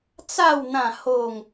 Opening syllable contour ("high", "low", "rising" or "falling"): falling